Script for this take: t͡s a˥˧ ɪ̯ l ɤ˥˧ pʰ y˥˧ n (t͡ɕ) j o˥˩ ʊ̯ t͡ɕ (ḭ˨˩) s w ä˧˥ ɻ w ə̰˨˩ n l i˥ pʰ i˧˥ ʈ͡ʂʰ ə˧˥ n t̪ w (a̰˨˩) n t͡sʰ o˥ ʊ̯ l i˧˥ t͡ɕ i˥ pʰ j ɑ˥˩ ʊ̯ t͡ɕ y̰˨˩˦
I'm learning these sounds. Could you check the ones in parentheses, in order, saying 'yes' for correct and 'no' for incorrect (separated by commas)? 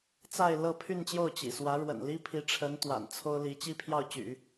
yes, yes, yes